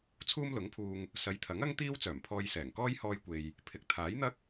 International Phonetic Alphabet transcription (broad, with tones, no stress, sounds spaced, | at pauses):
t͡sʰ uː˥ m l ʊ˨˥ ŋ pʰ uː˧ ŋ | s ɐ˨ j t̪ʰ ɐ˨˥ ŋ ɐ˥ ŋ t̪ iː˥ w t͡s œː˨˩ m pʰ ɔː˧ j s ɛː˨˩ ŋ k ɔː˥ j h ɔː˧ j kʷ e˨ j | pʰ ɪ˨ k̚ t̪ʰ aː˨˥ j n̪ ɐ˥ k̚